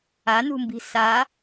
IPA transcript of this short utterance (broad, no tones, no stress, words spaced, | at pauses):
anṳmbi̤ sa